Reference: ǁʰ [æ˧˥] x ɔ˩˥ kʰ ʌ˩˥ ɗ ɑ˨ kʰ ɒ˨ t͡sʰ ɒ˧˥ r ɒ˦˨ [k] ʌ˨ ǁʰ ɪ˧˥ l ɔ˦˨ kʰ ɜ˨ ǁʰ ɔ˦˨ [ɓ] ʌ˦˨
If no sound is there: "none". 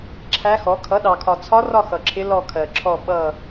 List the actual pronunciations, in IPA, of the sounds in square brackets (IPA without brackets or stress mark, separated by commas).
æ˧˥, x, ɓ